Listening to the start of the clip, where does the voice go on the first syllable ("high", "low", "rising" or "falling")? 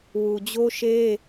low